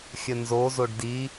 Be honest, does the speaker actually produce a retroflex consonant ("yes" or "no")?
yes